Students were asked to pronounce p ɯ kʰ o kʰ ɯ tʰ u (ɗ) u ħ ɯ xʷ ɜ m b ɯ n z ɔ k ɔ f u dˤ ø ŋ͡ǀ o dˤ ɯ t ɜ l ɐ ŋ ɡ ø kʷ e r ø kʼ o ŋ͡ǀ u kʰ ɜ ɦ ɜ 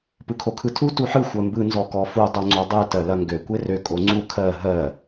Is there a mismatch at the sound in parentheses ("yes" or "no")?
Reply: yes